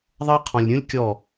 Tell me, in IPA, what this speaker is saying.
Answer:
ðˤ ɐ˦ qʰ ɔ̃˨ lʲ ɾʲ ũ˦ lʲ kʲ ɔ˦˨

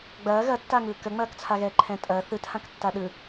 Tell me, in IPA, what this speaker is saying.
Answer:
ɡ͡b ɐː ɣ ɐ tː a ŋ ɯː k ə ŋ͡m ɐː k t͡sʰ a ɣ ɛː ǃʰ ɛ̃ tʼ ɐː θ ɯ t h ã k tː a ɗ ɯ

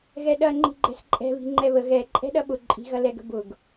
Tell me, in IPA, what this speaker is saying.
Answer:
ɣ ɛ ɗ ɐ ŋ͡ǃ i̤ ɡ͡ǃ ɛ̤ s ǃʼ ɛ̤ β i̤ ŋ͡ǃ ɛ β ə ɣ ɛ ǃʼ ɛ̤ ɗ ɐ ɓ ʊ ǃʼ i̤ ɣ ɐ l ɛ ɡ ə̤ b ʊ ɡ

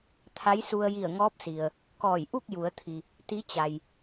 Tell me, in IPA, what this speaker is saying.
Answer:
t̪ʰ a˧˥ j s u˧ ə̯ j i˧˩ ə̯ ŋ ɔː˧˥ p̚ s i˩ ə̯ | k ɔː˧˩ j ʔ u˥˨ k̚ j u˩˧ ə̯ t̪ʰ i˩ | t̪ i˧˥ t͡ɕ a˩ j

